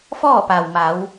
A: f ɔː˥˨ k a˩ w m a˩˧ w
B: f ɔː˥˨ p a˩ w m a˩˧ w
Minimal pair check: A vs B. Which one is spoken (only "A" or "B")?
B